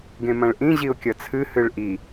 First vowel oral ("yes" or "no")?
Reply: no